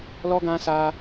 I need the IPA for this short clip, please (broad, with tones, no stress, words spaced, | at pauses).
lɔ˦ɡã˦sa˦